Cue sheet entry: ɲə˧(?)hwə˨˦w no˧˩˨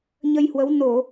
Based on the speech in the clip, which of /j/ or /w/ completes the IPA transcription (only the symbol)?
j